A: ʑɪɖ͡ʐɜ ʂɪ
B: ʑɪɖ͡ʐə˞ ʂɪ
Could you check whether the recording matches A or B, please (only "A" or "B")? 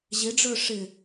B